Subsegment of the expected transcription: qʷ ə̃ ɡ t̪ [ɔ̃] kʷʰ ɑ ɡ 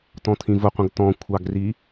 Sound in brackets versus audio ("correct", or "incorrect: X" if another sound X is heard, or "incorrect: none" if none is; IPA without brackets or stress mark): correct